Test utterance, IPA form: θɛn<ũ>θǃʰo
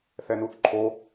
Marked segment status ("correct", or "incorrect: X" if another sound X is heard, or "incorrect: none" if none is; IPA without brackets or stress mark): incorrect: u